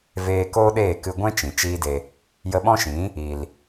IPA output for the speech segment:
v eː˧ k oː˦ ɗ eː˦˨ k ɨ˧ ɡʷ ɛ̃˦ t͡ʃ ĩ˨ t͡ʃ iː˦ d e˧ | j ə˧ ɓ ɔ̃˦ ʃ ĩ˨˦ | i˨ l

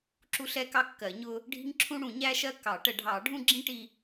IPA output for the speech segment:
ǁ u˥ ɬ ɛ˥ k ɑ˥ kː ɜ˨˩˦ ɲ ʊ˥ | ɖʱ i̤˥ ŋ ǁʰ ũ˥ ɽ ũ˨˩˦ ɲ æ˥ ʃ ɜ˥ k ɑ˨˩˦ ʈ ə˨˩˦ ɖʱ ɑ˨˩˦ ɖʱ ũ˥ ɡ͡ǁ ĩ˥ ʈ i˥

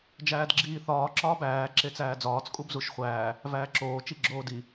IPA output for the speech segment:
d͡ʒ æː d ɡ͡ǁ iː θ ɒː ǁ ɒː b æː ǁ e t͡s æː d͡z ɒː t͡s kʼ u b z u ʃ χʷ æː | v æː ǁ oː t͡ʃ i ɡ͡ǁ oː d i

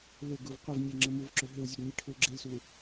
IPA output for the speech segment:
l ʏ ɡ u v qʷ ɘ v nʲ e ŋ͡ǁ ɘ m u v ǁ ʏ ɦ ʏ w zʲ u ɡ nʲ e ʈʰ u l ɡ͡ǁ e l s u

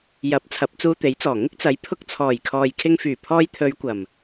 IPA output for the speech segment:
j ɐ˨˥ p̚ t͡sʰ ɐ˨˥ p̚ t͡s uː˧ t̪ e˨˥ j t͡s ɔː˨˩ ŋ ɪ˥ k̚ t͡s ɐ˨˥ j pʰ ʊ˧ k̚ t͡sʰ ɔː˨˩ j kʰ ɔː˨ j kʰ ɪ˧ ŋ f yː˨˩ pʰ ɔː˧ j t̪ʰ ɵ˨˧ ɥ kʷ ɐ˨˩ m

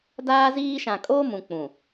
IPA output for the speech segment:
d aː˦ z iː˦ ʃ ã˨ kʼ oː˦ m ũ˨ k͡p ũ˨

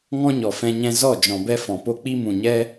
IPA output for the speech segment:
ŋ ɔ̃˦ ɲ ɔ˨ f ɛ̃˧ ɲ ɛ̃˧ z ɔ˦˨ d͡ʒ ɔ̃˨ b ɛ˦ f ɔ̃˨ p o˦ k͡p i˦ m ũ˨ ɲ ɛ˦

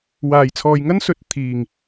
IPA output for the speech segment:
w aː˨˩ j t͡sʰ ɔː˨ j ŋ ɐ˥ n s ɵ˨˥ t̚ t̪ʰ iː˨˩ ŋ

